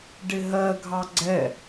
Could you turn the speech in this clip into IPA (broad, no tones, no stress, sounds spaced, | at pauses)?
ɖ ɪ ɦ ɜ ɡʱ ɑ ɡ͡ǀ ɛ